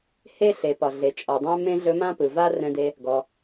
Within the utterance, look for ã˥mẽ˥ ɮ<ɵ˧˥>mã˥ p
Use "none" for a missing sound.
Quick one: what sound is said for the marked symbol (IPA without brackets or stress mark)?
ɵ˧˥